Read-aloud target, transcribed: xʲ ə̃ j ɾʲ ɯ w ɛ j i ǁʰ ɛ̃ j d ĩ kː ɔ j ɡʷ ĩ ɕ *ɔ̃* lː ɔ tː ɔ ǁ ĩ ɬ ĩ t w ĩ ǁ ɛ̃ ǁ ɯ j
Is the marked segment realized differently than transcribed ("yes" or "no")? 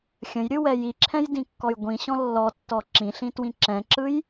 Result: no